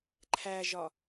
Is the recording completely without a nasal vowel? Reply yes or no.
yes